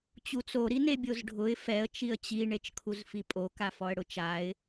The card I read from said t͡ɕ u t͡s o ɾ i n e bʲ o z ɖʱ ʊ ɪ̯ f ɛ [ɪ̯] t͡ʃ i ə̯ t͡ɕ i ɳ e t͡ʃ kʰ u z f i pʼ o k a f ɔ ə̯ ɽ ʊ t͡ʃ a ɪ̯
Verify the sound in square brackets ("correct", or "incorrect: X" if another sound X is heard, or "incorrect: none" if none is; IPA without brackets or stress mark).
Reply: incorrect: ə̯